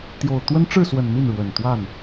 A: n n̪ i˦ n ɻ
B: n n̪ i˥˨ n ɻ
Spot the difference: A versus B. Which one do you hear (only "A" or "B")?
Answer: B